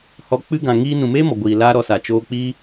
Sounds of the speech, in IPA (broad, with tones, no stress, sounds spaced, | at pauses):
h ɔ˧ k͡p ɨ˦ ɡ ã˨ ŋ iː˧ n ũ˨ m eː˦ m ɔ˨ ɡʷ iː˨ l aː˦ ɾ ɔ˧ s a˨ t͡ʃ oː˧ k͡p iː˦